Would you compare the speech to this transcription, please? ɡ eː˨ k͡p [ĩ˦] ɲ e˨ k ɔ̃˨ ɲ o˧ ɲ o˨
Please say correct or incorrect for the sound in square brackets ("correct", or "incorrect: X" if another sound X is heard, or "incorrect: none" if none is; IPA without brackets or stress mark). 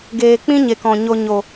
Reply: correct